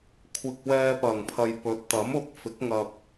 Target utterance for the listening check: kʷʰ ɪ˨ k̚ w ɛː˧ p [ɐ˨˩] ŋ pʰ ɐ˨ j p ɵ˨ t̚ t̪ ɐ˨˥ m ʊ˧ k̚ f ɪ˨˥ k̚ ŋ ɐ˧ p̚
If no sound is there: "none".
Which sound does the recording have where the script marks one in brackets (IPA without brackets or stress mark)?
ɐ˨˩